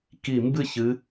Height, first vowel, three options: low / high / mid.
high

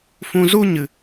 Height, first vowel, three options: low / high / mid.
high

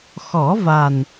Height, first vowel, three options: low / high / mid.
mid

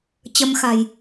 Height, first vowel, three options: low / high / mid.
mid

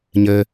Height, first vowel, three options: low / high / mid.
mid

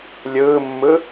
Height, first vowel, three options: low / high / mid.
high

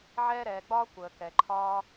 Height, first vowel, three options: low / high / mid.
mid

